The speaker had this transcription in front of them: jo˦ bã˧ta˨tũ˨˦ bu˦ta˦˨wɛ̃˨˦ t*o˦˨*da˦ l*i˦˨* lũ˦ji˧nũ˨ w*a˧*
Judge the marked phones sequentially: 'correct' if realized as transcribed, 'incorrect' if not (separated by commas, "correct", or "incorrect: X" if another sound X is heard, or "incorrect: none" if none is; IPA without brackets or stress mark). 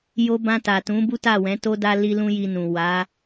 incorrect: o˦, incorrect: i˦, incorrect: a˨˦